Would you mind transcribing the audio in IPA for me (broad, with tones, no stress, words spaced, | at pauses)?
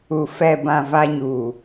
u˨ fɛ˨bã˨ va˦ɲuː˨